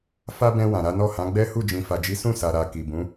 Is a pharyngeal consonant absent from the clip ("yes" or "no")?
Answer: yes